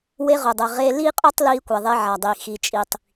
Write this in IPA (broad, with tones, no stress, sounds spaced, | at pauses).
w e˧ ʁ ʊ˩ dˤ ɛ˩ ʁ e˧ l i˥ qʼ o˥ tˤ l iː˧ kʷ ɛ˩ ðˤ e˧ ʕ a˩ dˤ i˩ x i˩ t͡ʃʼ i˩ tˤ